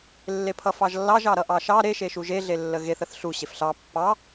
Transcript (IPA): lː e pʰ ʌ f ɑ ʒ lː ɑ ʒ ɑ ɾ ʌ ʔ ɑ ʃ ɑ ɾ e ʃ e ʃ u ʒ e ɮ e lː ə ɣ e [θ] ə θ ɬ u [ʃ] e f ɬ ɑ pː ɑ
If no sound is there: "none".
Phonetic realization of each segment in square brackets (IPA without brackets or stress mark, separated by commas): θ, ɕ